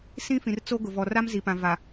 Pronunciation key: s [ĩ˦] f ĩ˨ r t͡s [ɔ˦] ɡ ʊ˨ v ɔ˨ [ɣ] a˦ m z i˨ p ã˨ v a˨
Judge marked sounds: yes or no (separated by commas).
yes, no, no